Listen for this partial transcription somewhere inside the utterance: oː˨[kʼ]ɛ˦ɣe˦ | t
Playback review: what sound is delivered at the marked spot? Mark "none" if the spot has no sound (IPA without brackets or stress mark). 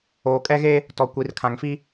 kʼ